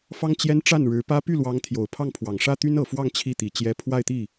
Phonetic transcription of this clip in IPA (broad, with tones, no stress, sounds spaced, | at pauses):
f ɑ˥ ŋ t͡ɕ j ɛ˥ n ʈ͡ʂ a˥˩ n ɻ ɻ̩˧˥ p ä˥ p y˥˩ l w ɑ˧˥ ŋ t̪ʰ j o˨˩ ʊ̯ pʰ ɑ˥˩ ŋ pʰ w ɑ˨˩ ŋ ʂ ä˥ t̪ y˥ n ɤ˨˩ f w ɑ˥˧ ŋ t͡ɕʰ i˥˩ t̪ i˨˩ t͡ɕ j ɛ˧˥ pʰ w a˥˧ ɪ̯ t̪ i˥˩